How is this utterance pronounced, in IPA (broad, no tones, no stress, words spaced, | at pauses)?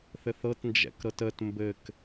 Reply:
θɘθɤt nd͡ʒɛ̰kɾɤtət mbɘk